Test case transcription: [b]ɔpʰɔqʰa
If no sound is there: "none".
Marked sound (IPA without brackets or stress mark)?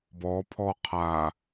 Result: b